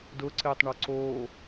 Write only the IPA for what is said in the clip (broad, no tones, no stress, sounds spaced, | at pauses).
d ʊ ǀ ɪː tˤ ɳ ɔ ǀ o